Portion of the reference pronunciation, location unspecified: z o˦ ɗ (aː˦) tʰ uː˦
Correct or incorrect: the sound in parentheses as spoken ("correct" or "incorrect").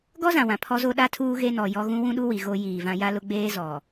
incorrect